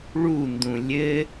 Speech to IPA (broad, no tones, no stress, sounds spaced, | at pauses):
ɭ u n d ũ lʲ ɘ